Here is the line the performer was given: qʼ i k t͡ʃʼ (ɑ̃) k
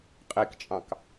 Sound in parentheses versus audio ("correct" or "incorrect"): correct